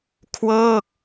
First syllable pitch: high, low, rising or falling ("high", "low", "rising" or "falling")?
falling